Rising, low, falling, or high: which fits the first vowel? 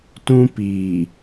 high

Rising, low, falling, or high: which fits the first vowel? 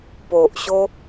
low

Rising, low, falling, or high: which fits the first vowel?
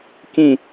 falling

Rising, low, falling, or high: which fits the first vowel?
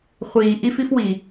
low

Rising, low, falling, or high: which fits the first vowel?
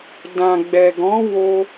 low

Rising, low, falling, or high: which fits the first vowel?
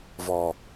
low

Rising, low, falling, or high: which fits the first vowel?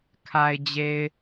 low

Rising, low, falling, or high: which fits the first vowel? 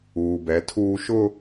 low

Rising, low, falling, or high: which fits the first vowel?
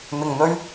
low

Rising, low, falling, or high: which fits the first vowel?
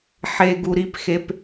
low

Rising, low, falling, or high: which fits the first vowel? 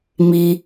high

